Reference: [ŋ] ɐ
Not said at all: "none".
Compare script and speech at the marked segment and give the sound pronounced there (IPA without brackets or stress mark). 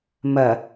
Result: m